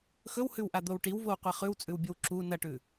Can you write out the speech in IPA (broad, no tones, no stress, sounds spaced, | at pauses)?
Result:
x ɵ w h ʉ w ʔ a d̪ o w ʈ i w v o w qʷ a χ ʉ w t͡sʼ ʉ w bʲ ɵ w ǁ u n ɐ ʈ ʉ